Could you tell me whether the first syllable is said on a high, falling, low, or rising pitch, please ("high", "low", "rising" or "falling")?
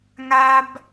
high